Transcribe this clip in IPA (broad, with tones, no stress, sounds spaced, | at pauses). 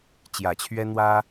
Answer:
t͡ɕ j ä˨˩ t͡ɕʰ ɥ ɛ˥ n̪ w ä˥